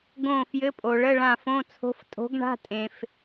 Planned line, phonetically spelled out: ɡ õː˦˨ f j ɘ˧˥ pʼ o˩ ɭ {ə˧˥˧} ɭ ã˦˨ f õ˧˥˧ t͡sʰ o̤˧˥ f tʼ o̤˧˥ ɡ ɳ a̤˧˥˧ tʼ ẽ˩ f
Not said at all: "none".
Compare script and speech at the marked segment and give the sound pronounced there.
ə˧˥˧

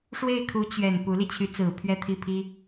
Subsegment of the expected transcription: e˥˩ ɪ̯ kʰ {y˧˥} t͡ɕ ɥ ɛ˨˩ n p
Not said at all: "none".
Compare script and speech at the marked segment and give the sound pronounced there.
u˧˥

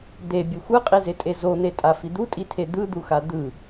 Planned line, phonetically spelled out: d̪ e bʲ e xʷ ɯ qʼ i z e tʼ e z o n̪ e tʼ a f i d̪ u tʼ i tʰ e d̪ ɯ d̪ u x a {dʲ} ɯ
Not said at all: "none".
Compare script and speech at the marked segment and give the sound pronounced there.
d̪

